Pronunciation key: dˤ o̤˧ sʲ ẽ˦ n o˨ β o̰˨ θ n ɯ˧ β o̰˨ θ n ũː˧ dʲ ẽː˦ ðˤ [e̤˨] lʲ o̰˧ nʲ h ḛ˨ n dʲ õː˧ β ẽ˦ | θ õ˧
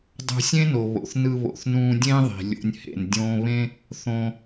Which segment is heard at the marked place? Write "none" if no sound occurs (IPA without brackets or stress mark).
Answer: i̤˨